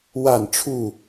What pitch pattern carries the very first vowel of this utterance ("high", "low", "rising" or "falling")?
falling